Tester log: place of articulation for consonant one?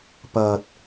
labial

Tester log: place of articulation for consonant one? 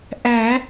glottal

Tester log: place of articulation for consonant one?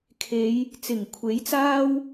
velar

